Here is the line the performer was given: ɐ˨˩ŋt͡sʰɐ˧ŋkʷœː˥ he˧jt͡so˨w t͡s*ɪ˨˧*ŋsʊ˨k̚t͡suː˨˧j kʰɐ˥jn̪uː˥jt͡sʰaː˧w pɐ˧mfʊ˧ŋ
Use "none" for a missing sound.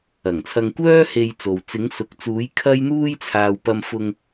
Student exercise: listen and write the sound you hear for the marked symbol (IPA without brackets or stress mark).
ɪ˨˧